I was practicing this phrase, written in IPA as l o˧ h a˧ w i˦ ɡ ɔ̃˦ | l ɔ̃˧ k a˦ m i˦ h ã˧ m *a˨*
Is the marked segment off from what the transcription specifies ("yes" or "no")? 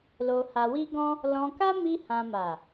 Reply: no